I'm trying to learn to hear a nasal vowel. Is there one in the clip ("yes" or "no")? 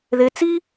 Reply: no